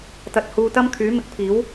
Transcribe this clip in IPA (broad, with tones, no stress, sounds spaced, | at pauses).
t̪ ɐ˨ t̚ h uː˧ t̪ ɐ˥ m kʰ yː˨˥ m ɪ˨˥ k̚ pʰ iː˨˥ w